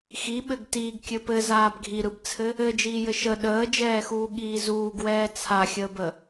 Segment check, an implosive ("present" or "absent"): present